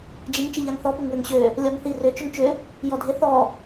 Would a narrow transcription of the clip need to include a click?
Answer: no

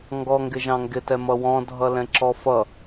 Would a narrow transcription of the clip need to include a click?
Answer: yes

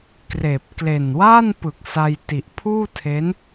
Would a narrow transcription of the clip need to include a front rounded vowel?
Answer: no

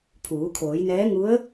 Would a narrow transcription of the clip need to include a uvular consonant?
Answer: no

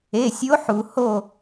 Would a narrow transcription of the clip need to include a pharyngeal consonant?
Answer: yes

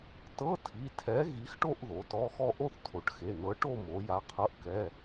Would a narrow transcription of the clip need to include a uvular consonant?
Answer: yes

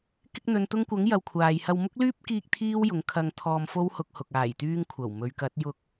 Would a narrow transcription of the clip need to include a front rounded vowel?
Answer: yes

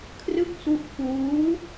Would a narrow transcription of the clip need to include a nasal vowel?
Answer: no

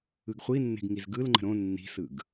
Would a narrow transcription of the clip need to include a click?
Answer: yes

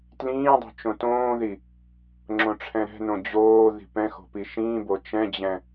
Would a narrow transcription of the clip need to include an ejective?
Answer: no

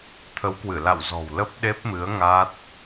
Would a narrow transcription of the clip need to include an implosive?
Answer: yes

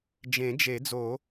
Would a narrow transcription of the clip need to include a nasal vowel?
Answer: yes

